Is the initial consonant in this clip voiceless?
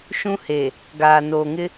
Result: yes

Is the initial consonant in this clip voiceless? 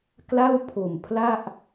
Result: yes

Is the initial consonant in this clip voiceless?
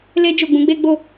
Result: no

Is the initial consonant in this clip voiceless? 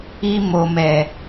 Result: no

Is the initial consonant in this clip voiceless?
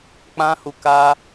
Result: yes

